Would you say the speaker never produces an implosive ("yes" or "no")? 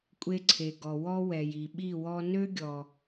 no